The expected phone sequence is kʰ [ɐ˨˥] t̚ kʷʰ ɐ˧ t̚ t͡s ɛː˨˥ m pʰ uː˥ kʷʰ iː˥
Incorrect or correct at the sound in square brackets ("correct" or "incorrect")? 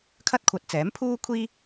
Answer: incorrect